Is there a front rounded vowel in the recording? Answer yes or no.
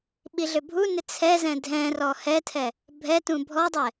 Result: yes